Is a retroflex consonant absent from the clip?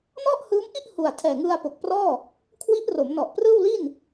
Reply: yes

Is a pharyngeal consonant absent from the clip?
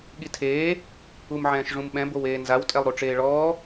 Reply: no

